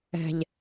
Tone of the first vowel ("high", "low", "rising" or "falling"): low